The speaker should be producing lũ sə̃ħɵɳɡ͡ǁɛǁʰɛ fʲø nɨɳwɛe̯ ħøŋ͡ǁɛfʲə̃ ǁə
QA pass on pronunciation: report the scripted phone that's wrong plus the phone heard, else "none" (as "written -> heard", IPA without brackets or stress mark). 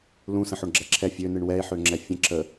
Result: ɵ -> o